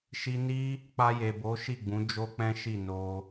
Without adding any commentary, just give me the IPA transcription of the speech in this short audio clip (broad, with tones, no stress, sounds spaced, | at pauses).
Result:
ʃ i˧ n i˦ | k͡p a˧ j e˨ b o˨˦ ʃ i˦˨ ɡ͡b ũ˨˦ d͡ʒ o˦ k͡p ɛ̃˦ ʃ i˦˨ n o˧